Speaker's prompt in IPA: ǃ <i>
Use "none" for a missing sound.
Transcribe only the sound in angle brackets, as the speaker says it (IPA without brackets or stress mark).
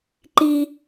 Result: i